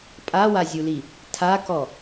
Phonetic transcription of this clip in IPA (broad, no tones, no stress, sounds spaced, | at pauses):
pʼ a w a zʲ u l i | tʰ a k ɔ